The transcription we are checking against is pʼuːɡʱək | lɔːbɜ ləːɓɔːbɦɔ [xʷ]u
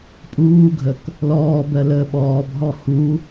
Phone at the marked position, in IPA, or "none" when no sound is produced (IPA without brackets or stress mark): h